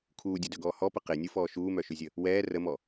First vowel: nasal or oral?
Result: oral